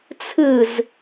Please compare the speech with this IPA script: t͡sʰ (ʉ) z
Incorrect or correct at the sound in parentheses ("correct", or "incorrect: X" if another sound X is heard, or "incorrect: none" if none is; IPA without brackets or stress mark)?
incorrect: ɨ